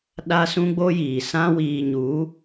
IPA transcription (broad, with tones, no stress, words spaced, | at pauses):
ɗa˦sũ˦ɡ͡bo˦jiː˨ sã˦ wiː˨ɲu˨˦